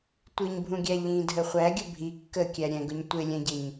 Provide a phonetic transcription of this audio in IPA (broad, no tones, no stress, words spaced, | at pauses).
tʷiɲbʱũɡʲæ ʎĩdʱə χʷæɡʲə bʱi kːəkʲæ ɾʲɛ̃ɡʊɲ tʷɪlʲɛ̃ɟɪɲ